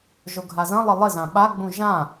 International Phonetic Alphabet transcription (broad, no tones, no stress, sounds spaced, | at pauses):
ʒ o ɡʱ a z ɐ̃ lˠ ɪ lˠ ɪ z ã ɓ a ɡ͡b ũ ʒ ã